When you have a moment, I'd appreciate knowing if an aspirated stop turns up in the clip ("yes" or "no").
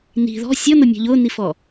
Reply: no